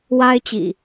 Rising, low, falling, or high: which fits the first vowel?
high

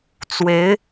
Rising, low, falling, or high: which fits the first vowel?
rising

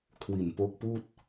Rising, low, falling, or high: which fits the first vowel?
low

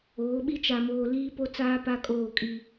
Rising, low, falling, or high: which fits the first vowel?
rising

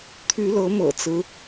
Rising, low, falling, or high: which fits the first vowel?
rising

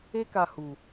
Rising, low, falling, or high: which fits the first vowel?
high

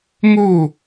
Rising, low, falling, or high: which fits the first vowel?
falling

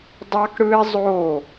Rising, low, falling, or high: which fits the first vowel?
high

